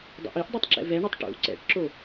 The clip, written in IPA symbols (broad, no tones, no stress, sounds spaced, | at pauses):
dˤ ɛ̰ ʔ i ʔ dˤ i tˤ ǁ ɛ̰ v ɛ ɳ ɛ tˤ ʈ ṵ ǀ ɛ̰ ʈ ǁ o